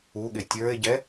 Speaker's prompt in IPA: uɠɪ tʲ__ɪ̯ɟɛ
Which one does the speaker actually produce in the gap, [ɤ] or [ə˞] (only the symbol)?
ə˞